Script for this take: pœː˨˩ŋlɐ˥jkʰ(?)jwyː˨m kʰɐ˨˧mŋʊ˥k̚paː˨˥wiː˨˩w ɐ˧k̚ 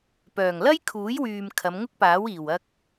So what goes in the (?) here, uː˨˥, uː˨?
uː˨˥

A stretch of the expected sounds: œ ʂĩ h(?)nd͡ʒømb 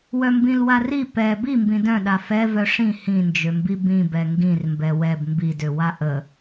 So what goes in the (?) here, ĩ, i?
ĩ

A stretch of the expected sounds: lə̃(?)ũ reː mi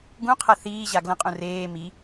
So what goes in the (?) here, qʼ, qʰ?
qʼ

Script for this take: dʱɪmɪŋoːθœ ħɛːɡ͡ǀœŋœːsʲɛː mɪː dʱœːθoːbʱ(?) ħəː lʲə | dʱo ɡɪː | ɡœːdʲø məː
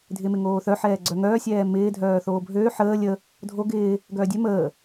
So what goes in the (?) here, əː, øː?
øː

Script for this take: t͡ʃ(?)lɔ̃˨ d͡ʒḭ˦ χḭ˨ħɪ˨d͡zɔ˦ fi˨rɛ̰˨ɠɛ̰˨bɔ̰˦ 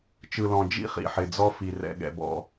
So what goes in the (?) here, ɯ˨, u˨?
ɯ˨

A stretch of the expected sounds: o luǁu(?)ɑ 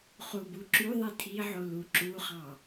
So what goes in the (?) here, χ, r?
χ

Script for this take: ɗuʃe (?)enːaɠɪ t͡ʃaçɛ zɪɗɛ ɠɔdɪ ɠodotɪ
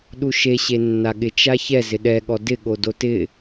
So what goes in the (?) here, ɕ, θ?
ɕ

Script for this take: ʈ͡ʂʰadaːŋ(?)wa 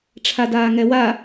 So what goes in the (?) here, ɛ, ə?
ɛ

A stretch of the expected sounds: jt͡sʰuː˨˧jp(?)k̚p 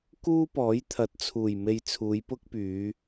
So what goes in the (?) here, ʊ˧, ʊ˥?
ʊ˥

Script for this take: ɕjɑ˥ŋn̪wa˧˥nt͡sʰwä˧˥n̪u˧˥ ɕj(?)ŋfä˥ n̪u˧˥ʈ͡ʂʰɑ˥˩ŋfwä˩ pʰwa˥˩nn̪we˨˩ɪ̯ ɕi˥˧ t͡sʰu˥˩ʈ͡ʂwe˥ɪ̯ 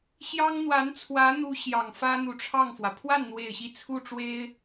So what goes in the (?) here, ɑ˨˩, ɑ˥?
ɑ˨˩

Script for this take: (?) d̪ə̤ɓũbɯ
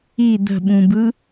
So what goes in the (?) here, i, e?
i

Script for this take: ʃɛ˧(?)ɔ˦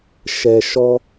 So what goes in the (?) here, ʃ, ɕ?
ʃ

